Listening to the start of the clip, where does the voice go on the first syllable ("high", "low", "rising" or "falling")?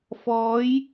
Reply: rising